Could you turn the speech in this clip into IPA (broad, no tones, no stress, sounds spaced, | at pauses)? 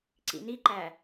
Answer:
ǀ ḭ n i ǃ æ